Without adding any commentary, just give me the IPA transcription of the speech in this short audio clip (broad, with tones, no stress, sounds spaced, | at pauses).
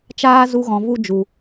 t͡ʃ aː˦ z u˧ ɣ ɔ̃˨ v u˦ d͡ʒ u˨